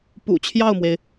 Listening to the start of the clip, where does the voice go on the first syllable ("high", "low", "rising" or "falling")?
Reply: low